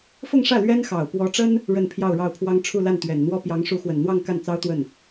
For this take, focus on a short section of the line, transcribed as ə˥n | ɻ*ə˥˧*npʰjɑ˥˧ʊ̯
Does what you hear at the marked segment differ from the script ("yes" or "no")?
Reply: no